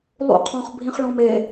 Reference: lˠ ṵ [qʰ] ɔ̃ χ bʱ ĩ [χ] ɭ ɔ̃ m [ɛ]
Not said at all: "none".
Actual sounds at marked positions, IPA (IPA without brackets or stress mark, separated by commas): qʰ, χ, e